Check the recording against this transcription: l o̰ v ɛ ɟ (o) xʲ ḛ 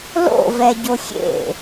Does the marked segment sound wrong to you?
no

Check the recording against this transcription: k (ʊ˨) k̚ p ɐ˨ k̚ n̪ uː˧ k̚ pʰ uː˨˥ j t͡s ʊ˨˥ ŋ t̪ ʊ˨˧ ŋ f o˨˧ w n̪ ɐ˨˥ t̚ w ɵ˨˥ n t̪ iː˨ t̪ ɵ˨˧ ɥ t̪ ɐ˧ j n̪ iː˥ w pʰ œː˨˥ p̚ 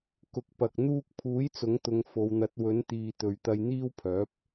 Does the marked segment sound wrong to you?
yes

